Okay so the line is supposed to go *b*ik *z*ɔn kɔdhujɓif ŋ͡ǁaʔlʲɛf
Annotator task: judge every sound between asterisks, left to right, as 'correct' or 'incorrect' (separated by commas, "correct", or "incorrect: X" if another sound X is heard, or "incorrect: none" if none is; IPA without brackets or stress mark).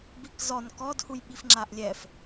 correct, correct